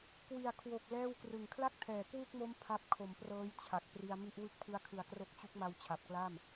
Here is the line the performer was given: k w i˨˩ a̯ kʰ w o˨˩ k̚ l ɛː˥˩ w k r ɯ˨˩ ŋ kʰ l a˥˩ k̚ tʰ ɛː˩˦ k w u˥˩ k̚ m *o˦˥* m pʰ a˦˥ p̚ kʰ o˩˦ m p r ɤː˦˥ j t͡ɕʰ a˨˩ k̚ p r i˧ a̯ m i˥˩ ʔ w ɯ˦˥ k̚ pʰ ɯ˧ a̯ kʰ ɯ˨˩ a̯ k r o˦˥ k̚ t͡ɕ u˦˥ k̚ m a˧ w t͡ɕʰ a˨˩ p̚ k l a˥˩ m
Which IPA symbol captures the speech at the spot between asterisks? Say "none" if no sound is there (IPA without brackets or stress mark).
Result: o˦˥